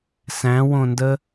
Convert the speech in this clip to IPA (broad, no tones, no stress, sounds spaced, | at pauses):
s æ̃ w õ n d ə